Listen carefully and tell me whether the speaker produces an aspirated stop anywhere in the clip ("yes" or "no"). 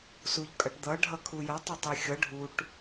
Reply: yes